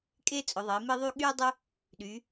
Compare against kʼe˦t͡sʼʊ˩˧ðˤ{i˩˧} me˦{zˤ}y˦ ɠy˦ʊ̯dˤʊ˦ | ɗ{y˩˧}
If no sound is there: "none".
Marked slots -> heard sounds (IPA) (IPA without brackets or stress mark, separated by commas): i˩˧, ðˤ, y˩˧